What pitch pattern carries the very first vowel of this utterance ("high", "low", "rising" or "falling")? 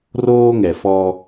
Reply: high